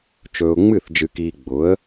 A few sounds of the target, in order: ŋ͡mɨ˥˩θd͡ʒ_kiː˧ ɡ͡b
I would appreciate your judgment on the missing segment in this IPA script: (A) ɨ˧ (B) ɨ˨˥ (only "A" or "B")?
A